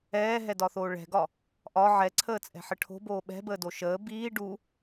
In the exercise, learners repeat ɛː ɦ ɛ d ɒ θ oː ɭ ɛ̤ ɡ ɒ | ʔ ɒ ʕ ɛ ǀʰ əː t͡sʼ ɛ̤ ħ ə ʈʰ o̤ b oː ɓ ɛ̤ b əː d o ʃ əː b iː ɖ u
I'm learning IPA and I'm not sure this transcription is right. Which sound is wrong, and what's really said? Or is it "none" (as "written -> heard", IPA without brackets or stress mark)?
none